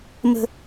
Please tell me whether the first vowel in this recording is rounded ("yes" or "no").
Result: no